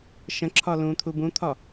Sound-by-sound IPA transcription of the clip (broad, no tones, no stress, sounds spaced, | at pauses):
ʃ ə̃ ǁʰ ɒ l ũ t̪ʰ u b ũ t̪ʰ ɒ